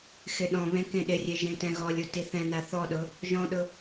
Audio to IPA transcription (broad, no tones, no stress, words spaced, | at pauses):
xɪɗɔ̃βẽ kẽɗɪrʲe ʒẽtɛ̃ɣɔlʲu tiθɛ̃na θɔɗʊ | ʒɔ̃ɗʊ